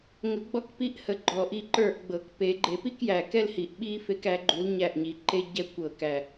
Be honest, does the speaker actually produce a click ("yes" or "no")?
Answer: yes